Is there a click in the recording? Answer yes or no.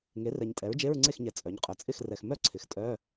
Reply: yes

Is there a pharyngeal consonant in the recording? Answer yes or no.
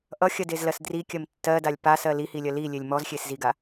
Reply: no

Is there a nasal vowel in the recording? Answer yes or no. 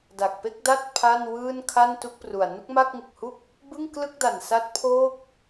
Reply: no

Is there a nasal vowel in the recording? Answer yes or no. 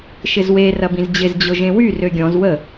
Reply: yes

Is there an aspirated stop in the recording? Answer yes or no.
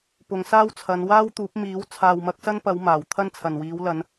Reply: yes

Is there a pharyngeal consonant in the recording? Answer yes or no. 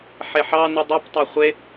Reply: yes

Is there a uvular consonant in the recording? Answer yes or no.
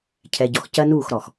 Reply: no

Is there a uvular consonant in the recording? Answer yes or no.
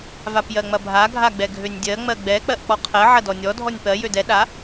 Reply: yes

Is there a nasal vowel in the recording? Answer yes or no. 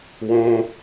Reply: yes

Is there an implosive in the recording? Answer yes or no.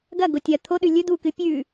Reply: yes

